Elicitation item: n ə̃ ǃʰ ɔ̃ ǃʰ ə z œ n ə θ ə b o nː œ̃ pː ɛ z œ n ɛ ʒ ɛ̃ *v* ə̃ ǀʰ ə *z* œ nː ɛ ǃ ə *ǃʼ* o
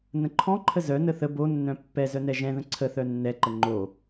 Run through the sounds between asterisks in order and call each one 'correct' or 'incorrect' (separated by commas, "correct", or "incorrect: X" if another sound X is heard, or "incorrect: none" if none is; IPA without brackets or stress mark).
incorrect: ð, incorrect: θ, incorrect: ŋ͡ǃ